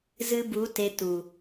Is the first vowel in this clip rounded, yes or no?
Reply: no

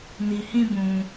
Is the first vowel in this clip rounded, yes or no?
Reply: no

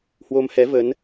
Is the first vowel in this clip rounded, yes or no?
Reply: yes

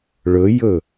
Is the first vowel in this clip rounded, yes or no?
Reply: yes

